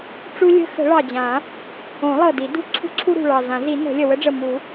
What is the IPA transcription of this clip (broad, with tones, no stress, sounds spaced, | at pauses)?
ʈ͡ʂ u˦ lʲ ə̤˦ x ə̤˨˩˦ ɭ ɑ˨˩ d͡ʑ ã˨˩˦ | õ˨˩˦ lˠ ɤ˨˩ d i˨˩˦ d ṳ˦ ǀʰ ṳ˦ ǀʰ u˦ ɾ ṳ˨˩ ɭ ɑ˨˩ z ã˨˩˦ z i˨˩˦ n ə̤˨˩˦ lʲ ə˨˩ w ə˦ ɖ͡ʐ ə˨˩ m u˨˩˦